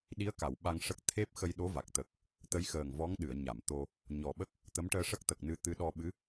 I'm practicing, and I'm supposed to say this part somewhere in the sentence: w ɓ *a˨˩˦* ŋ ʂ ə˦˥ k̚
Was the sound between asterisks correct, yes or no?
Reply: no